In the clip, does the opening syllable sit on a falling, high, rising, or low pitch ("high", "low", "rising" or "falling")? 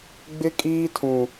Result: high